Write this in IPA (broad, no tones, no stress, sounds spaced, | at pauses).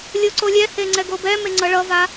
lʲ o ǀ o lʲ ɛ h e ŋ͡ǀ ɛ ɡ o b ɛ m e ŋ͡ǀ ʌ ɭ ʌ v a